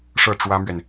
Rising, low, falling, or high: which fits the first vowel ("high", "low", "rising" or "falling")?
falling